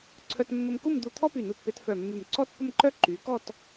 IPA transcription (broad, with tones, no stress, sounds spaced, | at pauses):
ǀʰ œ˧ t mː ə˧ m k u˥˧ m d̪ u˧ t̪ʰ ɔ˥ p y˧˩ n u˧˩ t p e˧ t f œ˧˩ mː y˧˩ m ǀ ɔ˥˧ t p ə˥˧ m ǃ œ˥ ǃ y˩˧ k ɔ˥˧ t